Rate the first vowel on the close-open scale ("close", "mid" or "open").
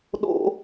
mid